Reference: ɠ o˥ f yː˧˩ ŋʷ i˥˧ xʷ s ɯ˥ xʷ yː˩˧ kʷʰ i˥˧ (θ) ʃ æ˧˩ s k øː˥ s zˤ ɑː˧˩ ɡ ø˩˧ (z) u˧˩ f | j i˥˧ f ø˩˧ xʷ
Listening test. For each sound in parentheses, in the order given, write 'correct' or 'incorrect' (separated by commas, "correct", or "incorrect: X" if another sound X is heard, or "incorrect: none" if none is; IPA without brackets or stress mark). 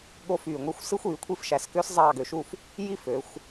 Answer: incorrect: f, incorrect: ʃ